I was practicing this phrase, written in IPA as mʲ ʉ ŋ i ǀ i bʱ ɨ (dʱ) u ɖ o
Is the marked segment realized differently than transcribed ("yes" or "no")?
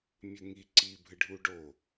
yes